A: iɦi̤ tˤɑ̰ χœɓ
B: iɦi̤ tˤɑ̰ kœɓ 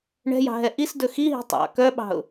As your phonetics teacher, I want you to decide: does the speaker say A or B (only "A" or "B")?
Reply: B